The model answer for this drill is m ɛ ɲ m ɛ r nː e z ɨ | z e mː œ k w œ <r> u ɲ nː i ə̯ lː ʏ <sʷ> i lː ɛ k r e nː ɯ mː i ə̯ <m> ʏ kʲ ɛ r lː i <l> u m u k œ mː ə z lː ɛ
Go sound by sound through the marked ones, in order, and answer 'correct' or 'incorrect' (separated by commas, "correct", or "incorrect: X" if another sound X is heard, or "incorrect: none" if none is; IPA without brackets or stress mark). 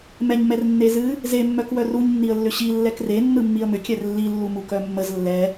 correct, incorrect: ɕ, correct, incorrect: lː